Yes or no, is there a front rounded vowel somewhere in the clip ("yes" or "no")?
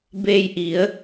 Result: no